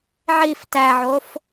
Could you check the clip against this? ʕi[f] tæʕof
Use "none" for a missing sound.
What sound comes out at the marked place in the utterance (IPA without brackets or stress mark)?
f